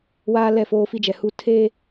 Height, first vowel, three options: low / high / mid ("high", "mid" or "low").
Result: low